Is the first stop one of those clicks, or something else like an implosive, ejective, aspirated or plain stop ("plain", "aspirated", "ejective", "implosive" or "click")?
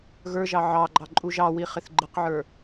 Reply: click